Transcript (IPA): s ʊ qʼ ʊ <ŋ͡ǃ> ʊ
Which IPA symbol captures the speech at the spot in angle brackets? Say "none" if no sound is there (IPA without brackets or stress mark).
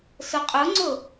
ŋ͡ǀ